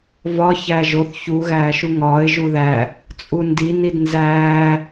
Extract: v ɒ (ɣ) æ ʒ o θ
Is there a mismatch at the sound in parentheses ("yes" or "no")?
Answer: yes